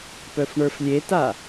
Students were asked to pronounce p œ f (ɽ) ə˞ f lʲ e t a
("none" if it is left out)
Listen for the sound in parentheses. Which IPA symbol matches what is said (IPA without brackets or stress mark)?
ɳ